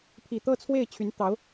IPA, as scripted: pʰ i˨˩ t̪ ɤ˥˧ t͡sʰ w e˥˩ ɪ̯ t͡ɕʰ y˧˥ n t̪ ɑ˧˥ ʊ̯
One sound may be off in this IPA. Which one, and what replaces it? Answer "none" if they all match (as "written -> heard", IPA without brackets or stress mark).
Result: none